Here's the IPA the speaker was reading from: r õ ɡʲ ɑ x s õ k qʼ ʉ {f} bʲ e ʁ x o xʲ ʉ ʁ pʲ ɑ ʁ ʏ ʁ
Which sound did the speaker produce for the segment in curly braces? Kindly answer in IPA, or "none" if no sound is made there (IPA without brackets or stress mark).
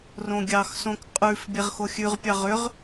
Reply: f